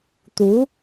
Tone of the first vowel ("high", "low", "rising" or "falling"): rising